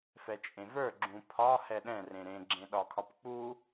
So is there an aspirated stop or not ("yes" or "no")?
yes